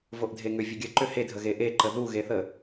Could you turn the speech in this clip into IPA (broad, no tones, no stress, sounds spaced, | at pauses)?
v o ʔ dʱ e ŋ ʏ vʲ ə ɡʲ ə ǃ ʏ h e dʱ ə ɣ e ʔ e ǃ ə ð u ɣ e θ ə